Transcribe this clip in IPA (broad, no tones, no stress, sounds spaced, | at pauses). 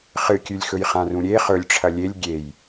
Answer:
χ ɨ kʲ ʉ lʲ x ɵ j χ ã r ũ ɾʲ e χ ɵ lʲ ʈ͡ʂʰ ɐ lʲ e lʲ ɡʲ e j